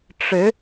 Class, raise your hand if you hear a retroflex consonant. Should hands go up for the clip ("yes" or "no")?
yes